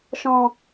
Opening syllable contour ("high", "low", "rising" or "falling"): low